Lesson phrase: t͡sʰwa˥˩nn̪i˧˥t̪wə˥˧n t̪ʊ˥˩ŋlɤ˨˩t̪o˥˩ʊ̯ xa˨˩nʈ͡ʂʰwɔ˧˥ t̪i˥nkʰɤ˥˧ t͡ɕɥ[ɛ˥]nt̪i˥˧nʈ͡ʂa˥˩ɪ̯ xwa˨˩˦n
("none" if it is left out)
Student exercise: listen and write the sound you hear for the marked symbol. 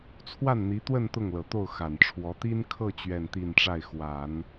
ɛ˥˧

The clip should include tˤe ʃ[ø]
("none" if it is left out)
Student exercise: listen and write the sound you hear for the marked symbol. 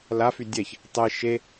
e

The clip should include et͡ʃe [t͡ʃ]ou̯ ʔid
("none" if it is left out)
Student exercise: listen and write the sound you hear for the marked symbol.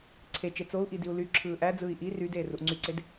t͡s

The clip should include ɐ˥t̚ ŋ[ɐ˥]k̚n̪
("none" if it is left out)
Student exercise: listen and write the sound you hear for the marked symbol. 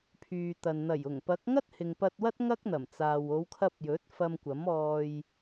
ɐ˥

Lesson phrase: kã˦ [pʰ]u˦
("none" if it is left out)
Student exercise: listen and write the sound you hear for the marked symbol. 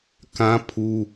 pʰ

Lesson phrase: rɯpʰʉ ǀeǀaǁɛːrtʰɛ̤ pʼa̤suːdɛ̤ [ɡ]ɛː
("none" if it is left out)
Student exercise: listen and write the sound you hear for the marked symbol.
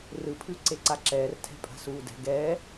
ɡ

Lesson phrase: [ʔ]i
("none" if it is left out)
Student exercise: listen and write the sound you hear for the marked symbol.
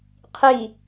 qʰ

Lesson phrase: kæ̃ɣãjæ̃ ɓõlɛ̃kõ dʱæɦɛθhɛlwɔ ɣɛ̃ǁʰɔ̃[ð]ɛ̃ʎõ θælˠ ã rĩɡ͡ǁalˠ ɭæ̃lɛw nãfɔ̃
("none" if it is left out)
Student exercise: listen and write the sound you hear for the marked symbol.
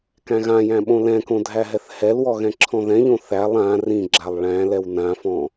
ð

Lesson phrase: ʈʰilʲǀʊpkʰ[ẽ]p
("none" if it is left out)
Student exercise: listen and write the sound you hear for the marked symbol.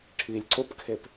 e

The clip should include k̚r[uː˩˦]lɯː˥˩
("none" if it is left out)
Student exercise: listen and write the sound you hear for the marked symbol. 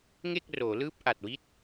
oː˩˦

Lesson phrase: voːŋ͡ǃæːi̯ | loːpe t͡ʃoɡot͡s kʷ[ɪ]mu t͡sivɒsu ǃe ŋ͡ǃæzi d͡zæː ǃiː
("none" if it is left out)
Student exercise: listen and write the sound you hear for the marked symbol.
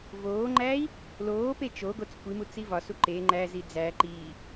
i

